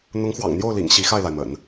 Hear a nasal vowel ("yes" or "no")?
no